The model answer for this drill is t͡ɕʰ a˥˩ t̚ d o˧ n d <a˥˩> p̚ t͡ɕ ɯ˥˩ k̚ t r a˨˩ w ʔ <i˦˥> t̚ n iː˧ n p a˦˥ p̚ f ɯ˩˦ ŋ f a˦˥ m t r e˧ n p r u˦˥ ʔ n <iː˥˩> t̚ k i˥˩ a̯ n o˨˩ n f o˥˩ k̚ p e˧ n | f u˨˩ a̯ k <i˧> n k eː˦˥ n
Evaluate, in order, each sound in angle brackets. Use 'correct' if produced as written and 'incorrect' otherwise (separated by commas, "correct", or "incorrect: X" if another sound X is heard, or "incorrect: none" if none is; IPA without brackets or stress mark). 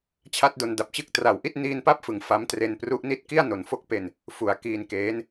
incorrect: a˨˩, incorrect: i˥˩, incorrect: i˥˩, incorrect: iː˧